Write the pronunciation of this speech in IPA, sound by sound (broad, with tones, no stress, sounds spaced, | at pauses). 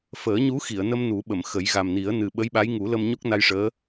f əː˨˩˦ ɲ u˧˥ x i˨˩˨ ə̯ n ə˧ m n u˨˩˦ ɓ ə˨˩˨ m x ə˨˩˦ j ɣ a˨˩ m n i˨˩˦ ə̯ n ɨ˨˩ ɓ ə˧˥ j ɓ a˧˥ j ŋ u˨˩˦ l ə˧ m ɲ o˦˥ k̚ n a˧ j ʂ əː˧˥